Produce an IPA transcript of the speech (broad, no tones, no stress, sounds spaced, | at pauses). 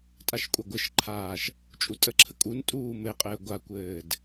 tʼ a ʃ kʷʼ a ɡʷ ɘ ʃ ǃʰ aː ʃ | t͡ʃʼ u tʼ ə ǁʰ ə kʼ u n tʼ uː m ɘ qʼ ɘː ɡʷ a kʷ ɘː d